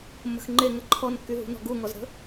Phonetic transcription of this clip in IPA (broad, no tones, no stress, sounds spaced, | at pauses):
mː ə̤ x ŋ͡ǃ e ŋ ə ǃʰ ɔ n kː y ɦ ṳ n ɔ̤ ɡ u ŋ ɔ z ɾ ə̤